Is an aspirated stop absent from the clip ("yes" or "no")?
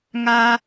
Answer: yes